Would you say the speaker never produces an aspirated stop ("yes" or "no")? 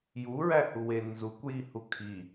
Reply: no